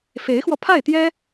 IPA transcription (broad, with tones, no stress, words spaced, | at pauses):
fe˧˥ɪ̯xwɔ˧ pʰa˥˩ɪ̯t̪jɛ˥